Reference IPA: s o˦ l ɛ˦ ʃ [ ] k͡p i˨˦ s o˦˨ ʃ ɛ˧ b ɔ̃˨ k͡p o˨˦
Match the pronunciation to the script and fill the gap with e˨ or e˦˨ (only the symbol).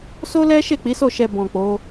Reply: e˦˨